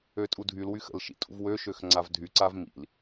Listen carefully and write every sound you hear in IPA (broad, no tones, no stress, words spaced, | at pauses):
øtʼudʱyl wyxə̰l ʃḭtʼṵvwø ʃøxŋ͡ǀavdʱy ǀavmḭl